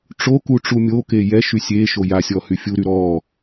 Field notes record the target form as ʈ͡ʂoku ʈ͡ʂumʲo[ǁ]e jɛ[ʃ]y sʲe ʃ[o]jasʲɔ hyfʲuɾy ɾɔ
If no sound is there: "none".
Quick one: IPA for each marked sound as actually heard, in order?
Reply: k, ʃ, o

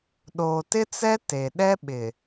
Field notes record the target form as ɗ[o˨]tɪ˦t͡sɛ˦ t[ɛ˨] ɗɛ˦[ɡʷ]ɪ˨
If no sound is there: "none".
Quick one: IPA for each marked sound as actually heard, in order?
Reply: oː˨, e˨, ɓ

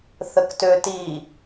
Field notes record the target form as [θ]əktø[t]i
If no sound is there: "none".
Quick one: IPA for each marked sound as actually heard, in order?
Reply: θ, t

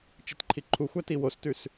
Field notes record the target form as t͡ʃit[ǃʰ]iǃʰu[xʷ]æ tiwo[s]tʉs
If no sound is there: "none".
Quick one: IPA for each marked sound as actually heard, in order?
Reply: ǃʰ, xʷ, s

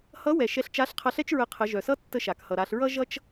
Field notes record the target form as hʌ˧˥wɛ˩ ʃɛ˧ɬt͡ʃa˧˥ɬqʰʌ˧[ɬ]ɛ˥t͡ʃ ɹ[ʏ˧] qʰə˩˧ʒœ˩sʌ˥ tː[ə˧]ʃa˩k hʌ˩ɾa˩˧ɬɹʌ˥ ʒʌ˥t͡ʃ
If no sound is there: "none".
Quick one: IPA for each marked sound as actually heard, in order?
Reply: ɬ, ə˧, ə˧

